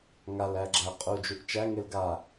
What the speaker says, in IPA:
ŋ a l æ ɡ͡ǁ æ qʼ u d͡ʒ u ʔ t͡ʃ æ ŋ e l ɡ a

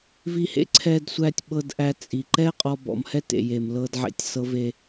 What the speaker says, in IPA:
v i˧ h ḛ˥ ǀʰ ɛ˧ d sʷ æ˧ tʲ ɓ ɤ˧ d ʔ æ˧ t͡sʼ i˩ ǃ ɛ˥ qʼ ɔ˧ b ɔ̰˩ m h ɛ˥ t ḛ˩ j e˩ m l ɤ˧ d ʕ ḛ˧ tʲ s ɤ˧ v e˧

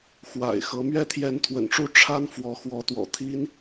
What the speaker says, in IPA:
x w a̰˨˩ ɪ̯ x ɤ˧˥ m ɥ ɛ˥ t̪ʰ j ɛ˧˥ n t̪ʰ w ə̰˨˩ n ʈ͡ʂ u˥˩ ʈ͡ʂʰ a˥ n f w ɔ˧˥ x w ɔ˧˥ t̪ w ɔ̰˨˩ t̪ʰ i˥ n

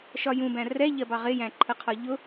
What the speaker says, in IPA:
ʃ ɒ j ũ b æ̃ r ɛ ʎ ɜ b ɑ ʁ ɪ j æ̃ ǃʰ ə qʰ ɒ ʎ ʊ

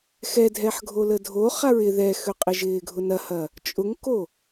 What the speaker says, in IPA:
x ɛ dʱ ɛ ħ ɡʱ o l ə dʱ o χ a ɹ ɪ ð ɛ x ø qʼ ɪ ʒ ɪː ɡʱ ʊ n ɐ h ɐ | t͡ʃʼ ʊ ŋ k o

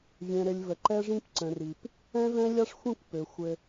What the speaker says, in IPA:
vʲ ɛ̃˨ ɾ ɘ˨ lʲ v ə˨ ǃ ɛ˦ ʐ ĩ˦ p ǀ ə̃˨ r i˨ p | ɛ̃˦ v ɛ̃˦ lʲ a˦ ʂ xʷ ĩ˦˨ kʷ p ø˨ xʷ ɘ˦

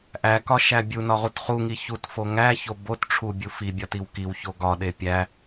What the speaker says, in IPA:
ʔ æ k ɒ ʃ æ bʲ u n ɒ ʁ u t χ u ŋ i ç u t f o ŋ æ ç o b o t ʈ͡ʂʰ u bʲ u f i bʲ ɒ t i w k i w ç o ɡ ɒ ɗ e pʲ æ

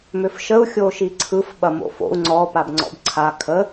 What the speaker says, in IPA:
m ʏ f ʃ ə u̯ xʲ o ʃ i ǀʰ ɯ f ɓ ɐ m o̰ f o̰ u̯ ŋ͡ǀ ɔ p a b ŋ͡ǀ ɔ̰ b ǀʰ a kʰ ə

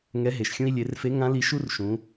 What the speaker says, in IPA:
ŋ ɛ˧˥ ɦ e˩ ʃ xʲ ũ˥ i̯ lʲ e˩˧ r f e˧˥ ŋ ã˧˥ l i˧ ʃ u˥ r ʃ ũ˩˧

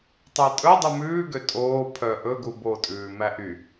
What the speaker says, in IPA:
tˤ æ tʼ ɵ dˤ u m ʉː ɡ ø tʼ oː pʰ œ ʔ ɵ ɡ u b o tʼ ʉː m æ ʔ y

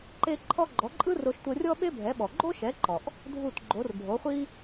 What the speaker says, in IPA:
ǃ e˧ ǃʰ ɔ˧ ɡ͡ǃ ɔ˩˥ ǃʼ ɯ˥ r o˧ ʃ tʷ ɤ˧ rʲ ɔ˥ ɓ e˥ bʱ ɛ˩˥ ɓ ɔ˩ ɡ͡ǃ o˥ ʃ ɛ˩˥ ǃ ɔ˩ ʔ | dʱ u˥˩ t ɡ͡ǃ o˩˥ r bʱ o˩˥ χʷ i˥

